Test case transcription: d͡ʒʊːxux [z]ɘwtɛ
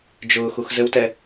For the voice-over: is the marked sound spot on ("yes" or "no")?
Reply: yes